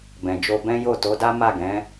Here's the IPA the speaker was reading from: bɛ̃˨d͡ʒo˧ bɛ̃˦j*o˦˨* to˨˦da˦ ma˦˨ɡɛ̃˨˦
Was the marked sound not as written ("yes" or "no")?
no